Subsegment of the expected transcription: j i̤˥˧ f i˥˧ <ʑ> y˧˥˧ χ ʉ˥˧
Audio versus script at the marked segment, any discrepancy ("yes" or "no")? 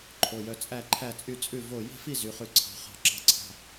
yes